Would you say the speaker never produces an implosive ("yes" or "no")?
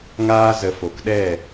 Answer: no